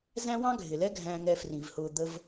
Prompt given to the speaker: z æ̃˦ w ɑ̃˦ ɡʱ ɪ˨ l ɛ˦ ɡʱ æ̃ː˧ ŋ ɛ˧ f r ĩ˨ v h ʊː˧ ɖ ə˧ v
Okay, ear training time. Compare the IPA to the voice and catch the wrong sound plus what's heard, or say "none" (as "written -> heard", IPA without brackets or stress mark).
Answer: ɖ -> d̪